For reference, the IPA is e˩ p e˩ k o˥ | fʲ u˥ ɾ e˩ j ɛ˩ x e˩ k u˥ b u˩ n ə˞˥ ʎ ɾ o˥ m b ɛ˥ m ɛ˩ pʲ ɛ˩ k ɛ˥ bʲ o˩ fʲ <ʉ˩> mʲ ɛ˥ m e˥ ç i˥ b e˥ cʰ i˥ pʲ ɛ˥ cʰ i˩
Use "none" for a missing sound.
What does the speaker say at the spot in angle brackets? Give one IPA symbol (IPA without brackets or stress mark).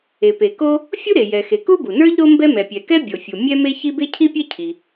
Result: u˩